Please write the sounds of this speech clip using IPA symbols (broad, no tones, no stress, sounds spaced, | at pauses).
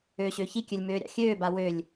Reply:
øː ɕ ø ç i kʲ ø lʲ m øː ɾʲ ɑ̰ xʲ øː b a w ø lʲ